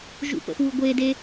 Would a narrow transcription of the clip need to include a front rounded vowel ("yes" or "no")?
no